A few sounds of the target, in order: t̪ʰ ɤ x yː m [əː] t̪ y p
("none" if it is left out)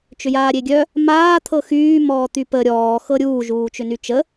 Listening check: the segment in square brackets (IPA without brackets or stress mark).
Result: ɔː